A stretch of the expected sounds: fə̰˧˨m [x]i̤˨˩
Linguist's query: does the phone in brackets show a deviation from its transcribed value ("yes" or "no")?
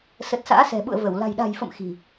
no